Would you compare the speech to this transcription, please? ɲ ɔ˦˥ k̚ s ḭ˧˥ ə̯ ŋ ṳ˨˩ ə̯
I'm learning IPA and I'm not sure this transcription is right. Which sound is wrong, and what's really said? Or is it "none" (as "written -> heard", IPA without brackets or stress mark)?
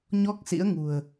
none